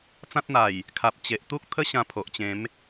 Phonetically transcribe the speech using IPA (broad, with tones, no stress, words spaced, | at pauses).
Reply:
t͡sã˦t̚n̪a˨˩j | kʰa˨p̚t͡ɕe˨ʔ t̪u˦k̚t̪ʰə˦ɕã˧ pʰo˨ʔt͡ɕẽ˨˦m